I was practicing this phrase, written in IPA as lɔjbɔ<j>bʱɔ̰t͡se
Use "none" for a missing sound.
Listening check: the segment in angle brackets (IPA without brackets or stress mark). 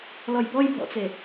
j